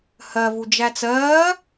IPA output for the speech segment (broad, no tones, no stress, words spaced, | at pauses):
hɜvu d͡ʒæt͡sɜː